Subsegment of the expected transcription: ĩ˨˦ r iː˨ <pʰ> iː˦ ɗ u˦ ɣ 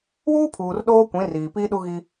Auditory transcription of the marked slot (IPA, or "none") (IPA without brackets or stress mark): p